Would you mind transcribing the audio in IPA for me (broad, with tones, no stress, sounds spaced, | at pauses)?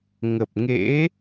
ŋ ə˨˩ p̚ ŋ ḛ˧˥